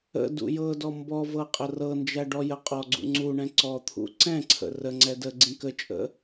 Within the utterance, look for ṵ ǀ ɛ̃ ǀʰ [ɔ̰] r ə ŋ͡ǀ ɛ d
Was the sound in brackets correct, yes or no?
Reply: no